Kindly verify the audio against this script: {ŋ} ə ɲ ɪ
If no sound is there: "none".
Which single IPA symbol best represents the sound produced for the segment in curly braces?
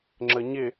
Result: ŋ͡ǁ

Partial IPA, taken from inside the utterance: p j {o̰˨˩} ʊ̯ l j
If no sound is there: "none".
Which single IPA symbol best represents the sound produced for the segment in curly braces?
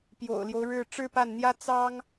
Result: o̰˨˩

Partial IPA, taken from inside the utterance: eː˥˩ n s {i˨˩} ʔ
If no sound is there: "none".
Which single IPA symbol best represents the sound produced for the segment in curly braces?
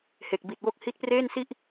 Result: i˥˩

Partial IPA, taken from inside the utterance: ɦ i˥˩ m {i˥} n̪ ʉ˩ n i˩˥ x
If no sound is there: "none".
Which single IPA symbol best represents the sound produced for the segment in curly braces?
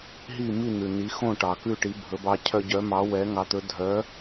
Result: i˥˩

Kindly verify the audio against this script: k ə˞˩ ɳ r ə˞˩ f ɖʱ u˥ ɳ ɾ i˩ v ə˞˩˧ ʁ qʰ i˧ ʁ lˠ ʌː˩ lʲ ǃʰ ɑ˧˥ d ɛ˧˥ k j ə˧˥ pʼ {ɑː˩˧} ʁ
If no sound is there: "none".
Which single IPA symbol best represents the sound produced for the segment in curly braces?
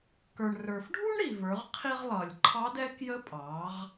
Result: ɑː˩˧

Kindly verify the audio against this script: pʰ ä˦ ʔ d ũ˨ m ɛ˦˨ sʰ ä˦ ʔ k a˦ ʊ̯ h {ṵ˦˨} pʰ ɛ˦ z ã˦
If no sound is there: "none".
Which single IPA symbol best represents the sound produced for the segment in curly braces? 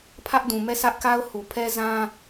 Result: u˨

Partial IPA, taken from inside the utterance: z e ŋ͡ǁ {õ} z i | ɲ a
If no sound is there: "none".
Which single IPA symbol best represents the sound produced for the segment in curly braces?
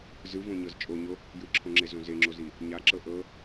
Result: o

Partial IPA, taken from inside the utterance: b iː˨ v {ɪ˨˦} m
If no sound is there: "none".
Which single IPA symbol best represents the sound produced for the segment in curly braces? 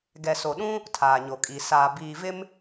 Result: ɪ˦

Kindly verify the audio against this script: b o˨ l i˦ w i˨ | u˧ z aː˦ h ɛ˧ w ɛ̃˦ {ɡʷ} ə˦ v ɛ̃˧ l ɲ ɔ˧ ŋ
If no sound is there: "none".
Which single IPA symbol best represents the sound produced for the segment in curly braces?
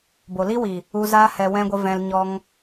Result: ɡʷ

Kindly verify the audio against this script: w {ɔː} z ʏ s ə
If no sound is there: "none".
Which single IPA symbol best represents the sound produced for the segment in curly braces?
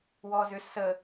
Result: ɔː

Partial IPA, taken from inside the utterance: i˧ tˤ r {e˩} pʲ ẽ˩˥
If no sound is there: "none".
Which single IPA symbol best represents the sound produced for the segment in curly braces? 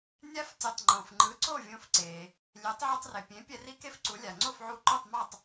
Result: e˩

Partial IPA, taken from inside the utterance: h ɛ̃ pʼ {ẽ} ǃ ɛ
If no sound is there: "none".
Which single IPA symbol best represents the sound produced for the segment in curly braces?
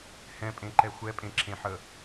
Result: ẽ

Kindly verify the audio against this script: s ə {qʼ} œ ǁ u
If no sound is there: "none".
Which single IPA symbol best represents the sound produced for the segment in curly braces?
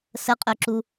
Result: qʼ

